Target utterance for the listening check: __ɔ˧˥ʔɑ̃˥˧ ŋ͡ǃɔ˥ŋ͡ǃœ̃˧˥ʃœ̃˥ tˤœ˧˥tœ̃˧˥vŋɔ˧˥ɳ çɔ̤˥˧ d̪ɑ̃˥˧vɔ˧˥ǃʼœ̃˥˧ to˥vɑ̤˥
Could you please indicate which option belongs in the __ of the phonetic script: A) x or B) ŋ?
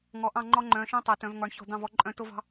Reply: B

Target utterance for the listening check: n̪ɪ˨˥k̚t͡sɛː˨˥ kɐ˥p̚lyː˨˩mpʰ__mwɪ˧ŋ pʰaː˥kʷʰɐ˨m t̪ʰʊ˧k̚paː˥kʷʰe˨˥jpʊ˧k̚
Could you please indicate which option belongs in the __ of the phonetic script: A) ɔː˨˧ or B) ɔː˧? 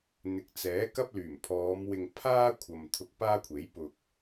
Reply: A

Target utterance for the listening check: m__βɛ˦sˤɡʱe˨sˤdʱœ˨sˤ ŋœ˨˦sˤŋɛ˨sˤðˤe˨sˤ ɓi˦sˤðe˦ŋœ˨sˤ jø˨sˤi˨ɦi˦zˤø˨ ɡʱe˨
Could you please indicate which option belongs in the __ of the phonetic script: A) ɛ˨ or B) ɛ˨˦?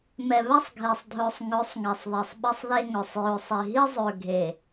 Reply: A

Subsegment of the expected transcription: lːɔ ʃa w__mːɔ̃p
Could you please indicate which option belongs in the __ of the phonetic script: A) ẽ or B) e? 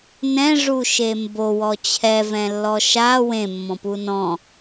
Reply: A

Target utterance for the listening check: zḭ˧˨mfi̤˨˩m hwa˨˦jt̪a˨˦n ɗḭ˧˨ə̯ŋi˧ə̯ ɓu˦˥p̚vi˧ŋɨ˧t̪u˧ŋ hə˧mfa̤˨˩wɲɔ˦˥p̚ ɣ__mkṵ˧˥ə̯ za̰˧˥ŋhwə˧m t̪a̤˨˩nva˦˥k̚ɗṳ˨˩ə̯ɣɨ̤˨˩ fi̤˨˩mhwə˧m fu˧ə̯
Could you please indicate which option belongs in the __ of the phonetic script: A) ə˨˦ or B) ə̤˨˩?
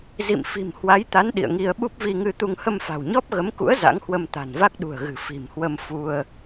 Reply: A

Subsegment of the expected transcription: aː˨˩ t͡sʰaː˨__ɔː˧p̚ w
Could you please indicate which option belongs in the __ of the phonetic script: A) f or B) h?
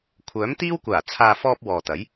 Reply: A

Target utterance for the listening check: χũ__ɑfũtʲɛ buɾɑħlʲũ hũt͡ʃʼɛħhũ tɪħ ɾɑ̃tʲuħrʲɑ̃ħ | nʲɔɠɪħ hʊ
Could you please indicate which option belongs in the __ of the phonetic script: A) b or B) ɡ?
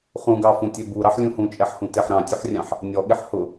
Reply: B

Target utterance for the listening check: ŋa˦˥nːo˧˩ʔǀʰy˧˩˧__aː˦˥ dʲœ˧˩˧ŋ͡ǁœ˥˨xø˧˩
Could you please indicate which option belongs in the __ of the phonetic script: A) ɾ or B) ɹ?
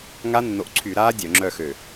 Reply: A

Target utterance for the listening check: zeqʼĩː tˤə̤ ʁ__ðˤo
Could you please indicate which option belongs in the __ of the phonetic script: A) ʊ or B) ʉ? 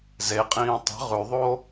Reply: B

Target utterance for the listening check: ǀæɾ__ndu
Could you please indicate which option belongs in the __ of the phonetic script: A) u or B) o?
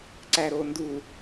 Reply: B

